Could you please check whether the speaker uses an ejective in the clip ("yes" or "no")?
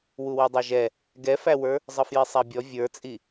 yes